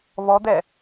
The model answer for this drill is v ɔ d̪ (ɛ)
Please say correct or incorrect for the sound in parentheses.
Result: correct